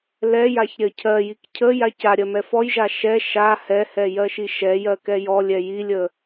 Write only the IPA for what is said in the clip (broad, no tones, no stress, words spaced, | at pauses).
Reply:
lɛjaç ɾʲɜcʰɜjik cʰə jacaɾʲɜ mɛfɔjʒa ʃɛ ʃa hɛhɛ jɜʃiʃɛjɜ kɛjɔlʲɛ jilʲə